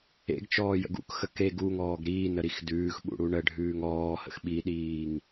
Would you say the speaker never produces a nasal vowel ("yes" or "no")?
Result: yes